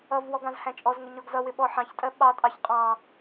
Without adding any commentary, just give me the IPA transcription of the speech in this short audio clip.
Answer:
ʌvwɔɡ ɑ̃zhæ̃t͡ʃʼɔzŋʊ ɲɔɡzʌwɪ ɓɔħɑ̃çtʼɜ ɓɑtʼɑç qʼɑ̃

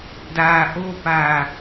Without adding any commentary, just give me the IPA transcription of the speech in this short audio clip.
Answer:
daʔopa

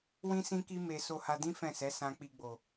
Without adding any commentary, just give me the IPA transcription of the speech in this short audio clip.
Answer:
wĩ˦sĩ˦ki˦ me˧ so˧ha˧dĩ˦ fɛ̃˦˨sɛ˨˦ sã˧k͡pi˧ɡ͡bo˨

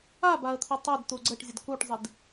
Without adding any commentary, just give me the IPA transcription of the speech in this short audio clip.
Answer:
abaə̯t̪ʰi tˤɛdt̪u ɡ͡ǀəʈzʲəd kuʈzˤid

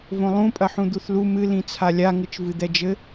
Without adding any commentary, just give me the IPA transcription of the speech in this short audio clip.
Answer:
võlˠũpʼɐħũ d̪uθlu mɨ lĩt͡sʰalʲa ŋɨt͡ʃvɨd̪ɛd͡ʒɘ

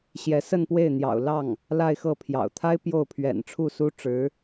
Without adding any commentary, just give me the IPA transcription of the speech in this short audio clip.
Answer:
ɕjɛ˧˥sə˥˧npwe˥˩ɪ̯n̪jɑ̰˨˩ʊ̯ lɑ˥˩ŋ | la˥˧ɪ̯xɤ˥˩pʰjɑ̰˨˩ʊ̯ t̪ʰa˥ɪ̯ pjo˥˩ʊ̯ pʰɥɛ̰˨˩nʈ͡ʂʰu˥˩ su˥ʈ͡ʂɻ̩˧˥

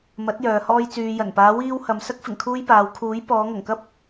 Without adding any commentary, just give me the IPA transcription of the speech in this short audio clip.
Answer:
mɐ˨˥t̚ jœː˨hɔː˧j t͡syː˨jɐ˨˩n paː˨˧wiː˧w hɐ˨m sɐ˥k̚ fɪ˨˩ŋkʰuː˥jpaː˨˧w kʰuː˨˥j pɔː˨˧ŋɐ˨˩ŋkɐ˥p̚

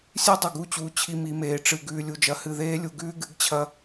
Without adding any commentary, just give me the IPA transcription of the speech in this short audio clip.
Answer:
sʲʉ˦dˤɵ˨ɡu˦˨t͡ɕuː˨ t͡ɕʰi˦mi˨˦meː˨ ʈ͡ʂɨ˨ ɡʉː˨lʲu˨d͡ʒɐ˨˦ hɨ˨ðeː˦lʲu˨ ɡʉː˦ɡɨ˨˦ɡt͡ɕʰɐ˦

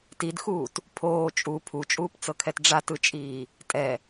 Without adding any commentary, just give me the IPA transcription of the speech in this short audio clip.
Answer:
tidxuːt | pʰoː t͡ʃʼu pʰut͡ʃʼuːpt͡sɤkʰɛt ɖ͡ʐatɯt͡ʃʼiː | tʼɛ

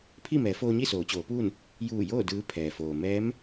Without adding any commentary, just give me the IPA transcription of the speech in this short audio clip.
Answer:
pʰi˥˨mɛː˩˧foː˧ɲi˥˨ soː˩˧t͡ɕoː˩˧puː˥˨n | juː˧˩joː˥˨ dɯː˧˥pʰɛː˩foː˩ mɛː˧˥m

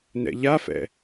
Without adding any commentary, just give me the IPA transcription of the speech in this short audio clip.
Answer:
nɛ̰ʎafɛ̰

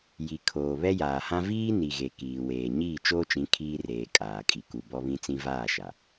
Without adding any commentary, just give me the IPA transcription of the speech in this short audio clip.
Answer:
ji˨kʰoː˨ βɛ˦jaː˨hã˦ viː˦ ni˨ɣe˨ kiː˨weː˨ ɲiː˦˨t͡ʃoː˦t͡ʃĩ˨˦ kʰiː˦reː˨ kʼaː˨kʼi˨ ku˨ bɔ˦βĩ˦ t͡sĩ˦vaː˦˨ʃa˨

